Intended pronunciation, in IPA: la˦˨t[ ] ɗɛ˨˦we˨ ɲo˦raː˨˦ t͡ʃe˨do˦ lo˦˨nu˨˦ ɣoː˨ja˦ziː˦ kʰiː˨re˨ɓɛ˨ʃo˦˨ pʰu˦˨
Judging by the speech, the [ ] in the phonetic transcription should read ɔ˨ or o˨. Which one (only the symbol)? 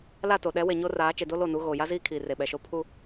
o˨